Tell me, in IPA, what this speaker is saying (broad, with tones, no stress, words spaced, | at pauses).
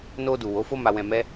no˧du˨ wo˨˦fo˦ma˧ wɛ̃˧mɛ˦